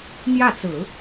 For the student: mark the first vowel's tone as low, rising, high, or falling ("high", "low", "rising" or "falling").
falling